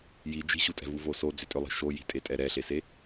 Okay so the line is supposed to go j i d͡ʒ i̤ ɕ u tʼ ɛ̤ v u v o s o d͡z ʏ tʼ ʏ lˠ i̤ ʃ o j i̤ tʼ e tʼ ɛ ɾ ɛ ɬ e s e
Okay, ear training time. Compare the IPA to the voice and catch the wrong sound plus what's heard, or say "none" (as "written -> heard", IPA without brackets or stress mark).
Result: none